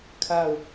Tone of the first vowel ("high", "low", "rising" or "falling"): falling